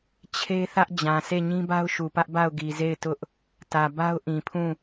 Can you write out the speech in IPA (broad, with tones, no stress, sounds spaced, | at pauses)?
t͡ɕʰ e˦ θ ä˦ ʔ d͡ʑ ã˨ sʰ e˦˨ ɲ ĩ˦ b a˦ ʊ̯ ʃ u˨ p ä˦ ʔ b a˦˨ ʊ̯ ɡ i˨ z e˦˨ ɪ̯ t ʊ˦ ʔ | t ä˨ b a˦ ʊ̯ ʔ ĩ˨ pʰ ũ˦˨